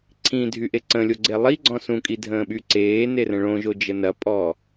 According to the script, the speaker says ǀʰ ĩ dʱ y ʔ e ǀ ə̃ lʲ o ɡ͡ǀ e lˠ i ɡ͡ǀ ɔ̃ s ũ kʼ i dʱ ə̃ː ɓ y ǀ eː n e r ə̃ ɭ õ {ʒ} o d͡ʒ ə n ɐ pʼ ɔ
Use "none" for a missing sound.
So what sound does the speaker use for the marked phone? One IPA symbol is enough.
ʒ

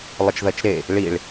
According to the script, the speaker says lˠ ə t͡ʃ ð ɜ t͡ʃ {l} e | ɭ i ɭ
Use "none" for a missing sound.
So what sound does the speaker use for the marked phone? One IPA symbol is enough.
ɾ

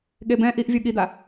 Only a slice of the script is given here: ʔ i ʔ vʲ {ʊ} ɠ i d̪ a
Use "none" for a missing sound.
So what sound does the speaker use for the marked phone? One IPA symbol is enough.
u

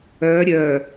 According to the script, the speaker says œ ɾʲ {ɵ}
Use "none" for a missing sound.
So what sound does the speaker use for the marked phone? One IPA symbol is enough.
œ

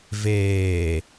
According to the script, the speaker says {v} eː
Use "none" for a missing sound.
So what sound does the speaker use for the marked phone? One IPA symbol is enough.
v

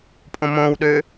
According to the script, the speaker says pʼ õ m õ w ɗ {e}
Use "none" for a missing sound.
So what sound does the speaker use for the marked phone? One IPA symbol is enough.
ø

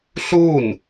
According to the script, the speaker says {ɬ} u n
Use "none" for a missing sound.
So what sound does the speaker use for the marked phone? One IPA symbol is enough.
ɬ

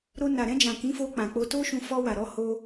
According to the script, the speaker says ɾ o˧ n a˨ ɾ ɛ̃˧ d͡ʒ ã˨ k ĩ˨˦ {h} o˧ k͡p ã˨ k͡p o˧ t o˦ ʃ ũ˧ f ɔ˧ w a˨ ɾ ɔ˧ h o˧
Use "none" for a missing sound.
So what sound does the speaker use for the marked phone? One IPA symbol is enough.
f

